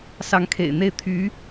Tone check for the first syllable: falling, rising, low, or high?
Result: rising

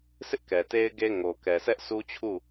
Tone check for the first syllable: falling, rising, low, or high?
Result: high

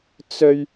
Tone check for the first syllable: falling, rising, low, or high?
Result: high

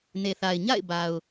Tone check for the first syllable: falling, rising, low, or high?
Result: low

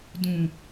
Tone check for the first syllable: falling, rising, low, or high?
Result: low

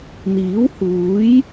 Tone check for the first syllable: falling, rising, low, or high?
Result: rising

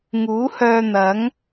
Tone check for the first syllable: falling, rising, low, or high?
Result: rising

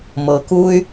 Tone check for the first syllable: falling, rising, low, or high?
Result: low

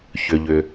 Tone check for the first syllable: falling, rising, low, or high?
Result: low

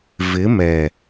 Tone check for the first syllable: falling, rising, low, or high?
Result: rising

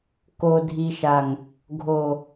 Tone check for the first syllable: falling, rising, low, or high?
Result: low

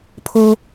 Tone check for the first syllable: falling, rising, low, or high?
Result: high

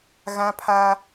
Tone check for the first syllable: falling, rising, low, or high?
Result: high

